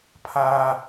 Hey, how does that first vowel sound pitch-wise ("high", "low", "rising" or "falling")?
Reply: high